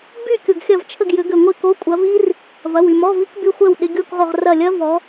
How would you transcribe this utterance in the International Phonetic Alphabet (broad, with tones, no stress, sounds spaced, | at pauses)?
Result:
b y˥˨ kʲ ʊ˧˩ ɡ xʲ ɐ˥˨ v t͡ʃʰ ə˥˨ ɡ j ʏ˨˦ ɡ ʏ˧˩ ŋʷ ɪ˥˨ k o˧˥˧ kʷʼ ɐ˨˦ v i˦˥ r | v ɐ˩˧˩ w y˧˩ m ɔ˧˥˧ v i˦˥ k b y˧˥˧ xʷ ɛ˥˨ w ɗ ɪ˧˥˧ ɡʲ o˥˨ k ʁ o˧˩ ʁ r ɐ˧˩ lʲ ɐ˦˥ v ɔ˨˦